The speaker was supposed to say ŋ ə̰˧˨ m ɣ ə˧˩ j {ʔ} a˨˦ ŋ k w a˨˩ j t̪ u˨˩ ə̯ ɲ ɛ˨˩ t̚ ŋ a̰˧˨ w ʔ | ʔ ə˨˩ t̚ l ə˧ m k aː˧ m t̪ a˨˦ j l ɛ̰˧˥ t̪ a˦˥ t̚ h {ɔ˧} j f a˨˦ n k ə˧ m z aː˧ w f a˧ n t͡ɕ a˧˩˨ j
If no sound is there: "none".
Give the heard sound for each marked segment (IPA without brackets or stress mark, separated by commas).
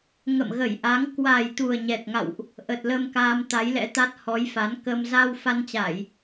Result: ʔ, ɔ˨˦